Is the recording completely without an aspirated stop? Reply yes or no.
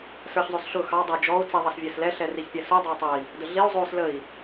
yes